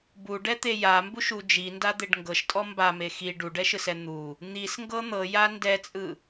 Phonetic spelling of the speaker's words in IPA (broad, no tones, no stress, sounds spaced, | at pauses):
b u ɖ ɛ t̪ e j a m b u ʃ u d͡ʒ i n d a d̪ e ɖ ŋ ɡ ɤ ʃ tʼ ɔ m b a m e x i ɖ u ɖ ɛ ʃ ɯ s ɛ n̪ u | n̪ i s ŋ ɡ ɤ n̪ ɤ j a n d ɛ t͡sʼ ɯ